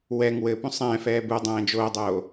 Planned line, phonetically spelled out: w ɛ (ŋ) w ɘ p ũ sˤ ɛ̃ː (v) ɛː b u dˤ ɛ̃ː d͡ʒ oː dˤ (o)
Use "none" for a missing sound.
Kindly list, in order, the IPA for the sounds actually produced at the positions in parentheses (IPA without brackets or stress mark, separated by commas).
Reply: ŋ, f, oː